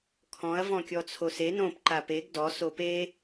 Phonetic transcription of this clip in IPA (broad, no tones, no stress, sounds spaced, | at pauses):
kʰ ɔ̃ ɐ̯ v ɔ̃ kʲ ɔ t͡sʰ o s e n õ p ǃ a p e ɡ d ɔ s o p e